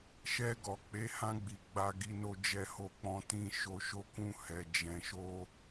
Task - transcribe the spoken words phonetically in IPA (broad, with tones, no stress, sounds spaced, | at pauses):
ʃ ɛ˧ ɡ ɔ˨ k͡p e˨˦ h ã˧ ɡ͡b i˨ ɡ͡b a˧ ɡ i˧ n o˧ d͡ʒ ɛ˧ h o˧ k͡p ɔ̃˧ t ĩ˧ ʃ o˧ ʃ o˦ k ũ˦ h ɛ˧ d͡ʒ ɛ̃˧ ʃ o˦